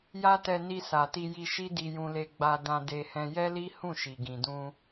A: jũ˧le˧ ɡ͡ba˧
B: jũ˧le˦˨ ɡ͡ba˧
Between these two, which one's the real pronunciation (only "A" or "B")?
A